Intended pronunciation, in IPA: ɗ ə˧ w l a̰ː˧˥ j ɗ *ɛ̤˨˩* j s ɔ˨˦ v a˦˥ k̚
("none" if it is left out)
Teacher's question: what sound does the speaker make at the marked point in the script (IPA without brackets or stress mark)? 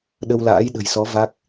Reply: ə̤˨˩